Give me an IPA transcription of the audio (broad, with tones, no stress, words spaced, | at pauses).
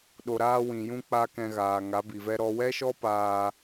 ɗo˨ɾaː˧wĩ˨jũ˧ k͡pa˦kɛ̃˧ ɣaː˨ ŋa˨˦bi˨vɛ˦ ɾɔ˧wɛ˦ʃɔ˦paː˧